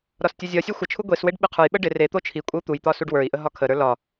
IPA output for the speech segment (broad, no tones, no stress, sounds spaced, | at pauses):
ɾ ɒ s tʲ ɒ zʲ ɒ sʲ ɒ xʷ ə t͡ʃʰ u ɡʷ e s w e ɖ ɓ ɪ qʰ ə˞ j ɓ ə ɖ ɪ r e t̪ o t͡ʃʰ i kʷʼ ə u̯ t̪ u j t̪ ɒ s u ɖ w ə˞ i̯ ʔ ə ɦ ɒ kʰ ə ɾ ə˞ l ɒ